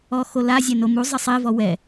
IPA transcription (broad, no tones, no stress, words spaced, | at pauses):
ɔxola zʲɛnomu zˤɪsˤi vɔwɛ